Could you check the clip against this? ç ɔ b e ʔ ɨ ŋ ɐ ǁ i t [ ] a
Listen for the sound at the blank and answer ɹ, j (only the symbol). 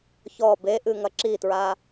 ɹ